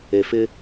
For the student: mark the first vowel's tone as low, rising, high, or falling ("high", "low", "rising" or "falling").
low